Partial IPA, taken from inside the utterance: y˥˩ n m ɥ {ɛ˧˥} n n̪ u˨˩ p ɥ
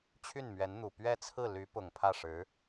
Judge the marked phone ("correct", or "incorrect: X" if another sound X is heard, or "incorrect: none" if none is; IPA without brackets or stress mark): correct